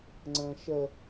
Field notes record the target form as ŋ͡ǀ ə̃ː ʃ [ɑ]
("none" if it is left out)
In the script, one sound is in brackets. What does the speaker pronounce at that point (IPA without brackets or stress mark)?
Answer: ə